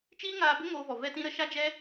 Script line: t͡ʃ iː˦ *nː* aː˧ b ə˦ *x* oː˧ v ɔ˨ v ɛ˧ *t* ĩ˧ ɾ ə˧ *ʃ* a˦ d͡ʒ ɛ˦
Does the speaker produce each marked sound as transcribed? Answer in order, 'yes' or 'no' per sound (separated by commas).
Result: no, no, yes, yes